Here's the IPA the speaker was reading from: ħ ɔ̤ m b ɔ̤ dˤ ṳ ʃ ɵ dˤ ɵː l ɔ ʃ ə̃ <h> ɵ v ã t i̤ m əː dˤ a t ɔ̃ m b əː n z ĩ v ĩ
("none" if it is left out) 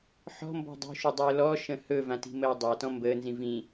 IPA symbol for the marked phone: h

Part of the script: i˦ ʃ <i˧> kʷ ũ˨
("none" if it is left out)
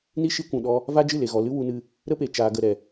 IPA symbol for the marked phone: i˧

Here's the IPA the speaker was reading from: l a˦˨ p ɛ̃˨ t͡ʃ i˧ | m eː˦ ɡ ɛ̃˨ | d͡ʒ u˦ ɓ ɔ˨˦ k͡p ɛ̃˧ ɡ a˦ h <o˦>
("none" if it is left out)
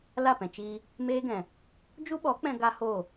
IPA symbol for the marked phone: o˦˨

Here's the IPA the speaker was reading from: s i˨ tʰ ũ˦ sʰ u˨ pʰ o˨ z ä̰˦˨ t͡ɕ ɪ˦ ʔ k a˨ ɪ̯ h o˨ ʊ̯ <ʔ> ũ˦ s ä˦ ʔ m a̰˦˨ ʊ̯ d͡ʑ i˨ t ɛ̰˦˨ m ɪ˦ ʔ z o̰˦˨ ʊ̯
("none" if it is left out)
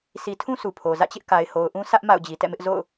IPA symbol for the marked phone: ʔ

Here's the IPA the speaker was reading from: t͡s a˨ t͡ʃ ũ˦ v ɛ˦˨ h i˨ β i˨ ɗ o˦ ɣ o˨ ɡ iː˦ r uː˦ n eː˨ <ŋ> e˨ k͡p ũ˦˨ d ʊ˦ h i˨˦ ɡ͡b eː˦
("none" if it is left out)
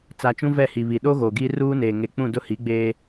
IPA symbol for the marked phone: ŋ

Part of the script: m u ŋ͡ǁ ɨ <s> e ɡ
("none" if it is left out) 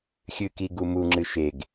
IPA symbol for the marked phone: ʃ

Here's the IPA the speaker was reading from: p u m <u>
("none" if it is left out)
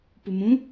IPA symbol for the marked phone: ũ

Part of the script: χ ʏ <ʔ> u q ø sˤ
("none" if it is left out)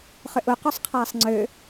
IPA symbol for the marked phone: ʔ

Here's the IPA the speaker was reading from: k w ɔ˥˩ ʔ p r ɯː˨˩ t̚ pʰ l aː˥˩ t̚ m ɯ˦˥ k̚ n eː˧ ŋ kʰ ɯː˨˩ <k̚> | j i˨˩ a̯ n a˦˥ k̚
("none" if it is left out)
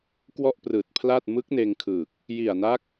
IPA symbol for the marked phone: k̚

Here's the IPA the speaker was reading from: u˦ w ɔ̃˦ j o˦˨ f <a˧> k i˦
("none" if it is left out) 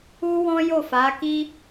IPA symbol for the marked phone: a˨˦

